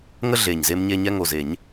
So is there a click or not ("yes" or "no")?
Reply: no